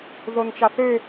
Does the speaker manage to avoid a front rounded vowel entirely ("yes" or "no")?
no